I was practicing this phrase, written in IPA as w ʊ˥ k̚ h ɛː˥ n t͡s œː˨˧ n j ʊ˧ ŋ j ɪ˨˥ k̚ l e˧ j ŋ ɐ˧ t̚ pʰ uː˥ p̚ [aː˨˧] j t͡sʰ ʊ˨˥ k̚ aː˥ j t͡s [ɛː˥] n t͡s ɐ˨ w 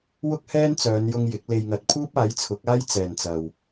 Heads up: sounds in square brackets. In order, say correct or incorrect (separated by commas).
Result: incorrect, incorrect